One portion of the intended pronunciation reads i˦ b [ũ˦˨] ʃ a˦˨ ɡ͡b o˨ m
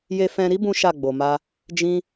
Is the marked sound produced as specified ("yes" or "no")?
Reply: no